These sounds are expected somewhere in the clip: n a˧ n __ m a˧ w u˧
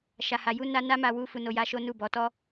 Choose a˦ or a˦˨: a˦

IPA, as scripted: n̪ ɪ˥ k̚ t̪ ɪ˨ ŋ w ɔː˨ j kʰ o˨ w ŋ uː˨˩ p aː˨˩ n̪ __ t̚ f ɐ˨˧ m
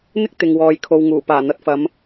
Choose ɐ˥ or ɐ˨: ɐ˨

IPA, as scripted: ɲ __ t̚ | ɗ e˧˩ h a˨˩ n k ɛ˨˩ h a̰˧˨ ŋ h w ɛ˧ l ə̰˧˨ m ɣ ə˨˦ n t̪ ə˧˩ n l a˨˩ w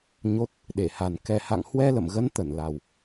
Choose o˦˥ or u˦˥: o˦˥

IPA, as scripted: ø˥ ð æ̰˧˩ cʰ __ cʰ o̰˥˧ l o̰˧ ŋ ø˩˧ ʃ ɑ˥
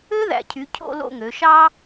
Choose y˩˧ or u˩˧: y˩˧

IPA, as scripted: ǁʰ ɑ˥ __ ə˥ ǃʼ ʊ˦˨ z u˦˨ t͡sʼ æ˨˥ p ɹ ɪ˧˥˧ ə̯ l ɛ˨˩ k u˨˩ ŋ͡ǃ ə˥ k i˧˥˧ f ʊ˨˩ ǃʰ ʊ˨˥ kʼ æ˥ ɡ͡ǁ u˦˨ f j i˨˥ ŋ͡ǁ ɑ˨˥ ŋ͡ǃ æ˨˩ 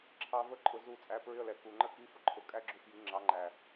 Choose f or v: v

